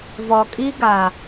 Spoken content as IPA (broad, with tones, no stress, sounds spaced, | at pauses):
v ɔ˨ kʼ i˦ ɡ a˨